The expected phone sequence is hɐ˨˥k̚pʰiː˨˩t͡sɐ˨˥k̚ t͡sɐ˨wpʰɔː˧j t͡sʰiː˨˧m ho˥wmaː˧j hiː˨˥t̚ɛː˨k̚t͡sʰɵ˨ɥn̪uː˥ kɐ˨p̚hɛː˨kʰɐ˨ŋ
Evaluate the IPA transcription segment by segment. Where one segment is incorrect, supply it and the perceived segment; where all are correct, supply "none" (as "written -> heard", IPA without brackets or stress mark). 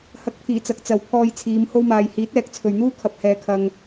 k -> kʰ